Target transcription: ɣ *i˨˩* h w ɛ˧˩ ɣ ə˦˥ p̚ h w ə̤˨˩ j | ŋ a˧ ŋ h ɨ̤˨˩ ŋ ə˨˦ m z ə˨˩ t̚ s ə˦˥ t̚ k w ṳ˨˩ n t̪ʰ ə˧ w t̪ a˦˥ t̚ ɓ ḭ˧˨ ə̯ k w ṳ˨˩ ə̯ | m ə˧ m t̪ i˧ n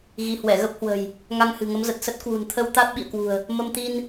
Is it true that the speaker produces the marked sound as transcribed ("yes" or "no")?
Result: no